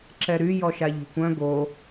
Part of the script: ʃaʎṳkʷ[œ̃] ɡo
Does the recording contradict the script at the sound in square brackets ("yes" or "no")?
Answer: no